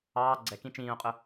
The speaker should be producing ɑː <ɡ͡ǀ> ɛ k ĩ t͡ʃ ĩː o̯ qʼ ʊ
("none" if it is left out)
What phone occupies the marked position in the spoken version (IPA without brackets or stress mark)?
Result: ɡ͡ǀ